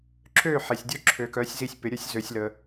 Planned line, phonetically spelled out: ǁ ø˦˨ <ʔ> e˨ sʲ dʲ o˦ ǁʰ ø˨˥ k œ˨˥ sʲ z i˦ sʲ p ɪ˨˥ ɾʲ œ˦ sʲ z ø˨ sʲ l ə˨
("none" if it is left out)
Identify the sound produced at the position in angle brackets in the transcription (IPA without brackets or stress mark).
ħ